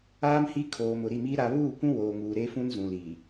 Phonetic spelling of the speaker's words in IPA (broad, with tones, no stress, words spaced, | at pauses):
aː˦mhi˦kʰoː˨ mʊ˨ɾi˦˨miː˦ ɾa˨βuː˦˨kʷũ˦ woː˨ŋuː˨ɾe˦fũ˦n zũ˨liː˨